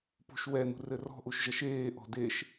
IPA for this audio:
p ṳ ʃ w ɛ n ṳ r ɘ r ɔ̤ ʔ u ʃ ʒ ɐ ʃ eː ʔ ɔ̤ d e ʃ

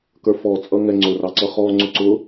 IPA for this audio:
k ə˞ f ɔ t͡sʼ ʌ ŋ ɛ ŋ͡ǀ ʊ r ɑ ǀ ʌ χ ɔ ŋ͡ǀ ʊ ǀ ʊ

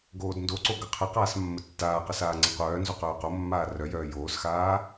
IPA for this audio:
ɡ oː d n d o ǀ o ɡ ə qʰ ə q aː s mː ə tː aː q ə s aː ŋ͡ǀ ə qʷ œː n z o q œː q o mː aː r œ j œː j oː s x aː

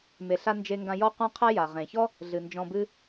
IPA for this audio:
m e˩ ɬ a˧ n d͡ʒ e˧ ŋ ɡ ã˧ j ɔ˥ qʷ ã˥ qʰ ɛ˥ j a˩ ʁ ẽ˩ ç ɔ˥ | ɮ ɨ˩ n d͡ʒ ɔ̃˧ b ɨ˥

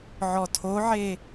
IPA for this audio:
ʕ ɔ tʰ o ʕ e

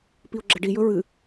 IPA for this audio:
p i o̯ ɡ͡ǁ ɐ ɖ i j ɵ ɹ ɨ

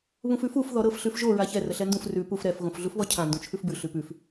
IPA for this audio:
β ũ f ʉ f u f ð ɔ ɾ ɤ f ɬ ʉ f ʒ o ɹ a ç ɛ r ə ɬ ɛ n d ũ f r ʉ p u f ɾ ɛ f ɣ õ f ɮ u f β ɔ cʰ ã n d ũ t͡ʃʰ ʉ f b ʉ ɬ ʉ p ʉ f

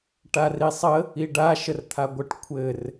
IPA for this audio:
ʈ a r i sˤ ə | i ɖ a ʃ ə r t̪ʰ a ɡʷ ə ʈ kʷʰ ɘ r

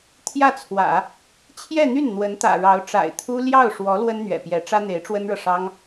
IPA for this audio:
t̪ʰ j ä˥˩ t͡sʰ w ä̰˨˩˦ | t͡ɕʰ j ɛ˥˧ n̪ y˥˩ n n̪ w ə˧˥ n t̪ ä̰˨˩ ɻ ɑ˧˥ ʊ̯ ʈ͡ʂ a̰˨˩ ɪ̯ t̪ʰ u˥ l j ɑ˥˩ ʊ̯ ʂ w ɔ˧˥ l w ə˥ n n̪ ɥ ɛ̰˨˩ p j ɛ˧˥ ʈ͡ʂ ä˥ n̪ e˧˥ ɪ̯ ʈ͡ʂ w ə˥ n ɻ ɤ˨ ʂ ɑ˥ ŋ

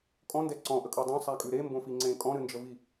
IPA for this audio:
kʼ ɔ̃ n d ɛ ǀ ɔ̃ ʔ ə kʼ ə˞ dˤ õ sˤ æ kʼ ʉ ɾ e m b õ f i ŋ͡ǀ ẽ kʼ ɔ̃ ɾ ɨ n d͡ʒ ə v i

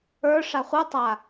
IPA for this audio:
ə˞ ʂ a χʷ ə˞ tˤ a

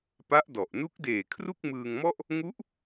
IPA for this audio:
p a˦˥ ʔ d ɔ˨˩ ʔ n u˦˥ k̚ d eː˨˩ kʰ r u˥˩ k̚ m ɯː˧ ŋ m ɔ˥˩ ʔ | ŋ u˦˥ ʔ

